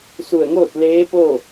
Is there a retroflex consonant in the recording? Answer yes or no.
no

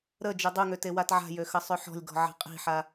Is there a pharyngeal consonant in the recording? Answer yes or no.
yes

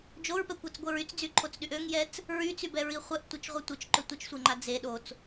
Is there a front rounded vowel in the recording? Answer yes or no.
yes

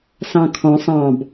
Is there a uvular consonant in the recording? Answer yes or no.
no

